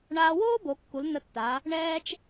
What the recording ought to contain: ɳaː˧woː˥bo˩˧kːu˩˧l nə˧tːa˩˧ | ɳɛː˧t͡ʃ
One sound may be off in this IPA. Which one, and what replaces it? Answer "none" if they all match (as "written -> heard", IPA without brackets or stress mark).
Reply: none